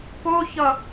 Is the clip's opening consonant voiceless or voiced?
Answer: voiceless